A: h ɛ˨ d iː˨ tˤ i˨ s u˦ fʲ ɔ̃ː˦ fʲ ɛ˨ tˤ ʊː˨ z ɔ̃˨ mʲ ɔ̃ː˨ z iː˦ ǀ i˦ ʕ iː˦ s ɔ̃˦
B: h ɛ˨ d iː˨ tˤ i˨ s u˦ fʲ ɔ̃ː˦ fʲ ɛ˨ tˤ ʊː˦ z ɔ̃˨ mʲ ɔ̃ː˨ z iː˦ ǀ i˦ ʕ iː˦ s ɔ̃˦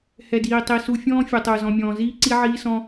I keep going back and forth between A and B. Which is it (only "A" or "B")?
A